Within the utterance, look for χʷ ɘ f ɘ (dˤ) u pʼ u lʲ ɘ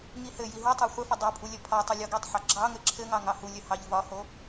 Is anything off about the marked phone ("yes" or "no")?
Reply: no